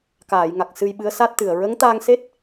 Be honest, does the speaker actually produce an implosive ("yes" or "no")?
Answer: yes